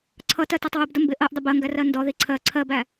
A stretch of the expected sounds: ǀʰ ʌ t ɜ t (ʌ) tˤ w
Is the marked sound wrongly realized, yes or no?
yes